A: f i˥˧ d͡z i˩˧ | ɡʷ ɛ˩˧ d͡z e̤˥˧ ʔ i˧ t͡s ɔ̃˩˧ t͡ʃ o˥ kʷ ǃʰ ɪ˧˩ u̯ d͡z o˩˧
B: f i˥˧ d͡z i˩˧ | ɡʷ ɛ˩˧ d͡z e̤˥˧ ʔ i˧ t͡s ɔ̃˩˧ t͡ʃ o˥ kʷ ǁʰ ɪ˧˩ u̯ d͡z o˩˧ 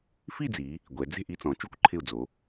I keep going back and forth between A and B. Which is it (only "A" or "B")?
A